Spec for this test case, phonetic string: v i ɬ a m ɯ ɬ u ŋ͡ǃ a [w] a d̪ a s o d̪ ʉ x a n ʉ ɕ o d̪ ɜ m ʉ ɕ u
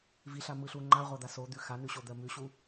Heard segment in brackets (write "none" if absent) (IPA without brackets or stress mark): ʁʷ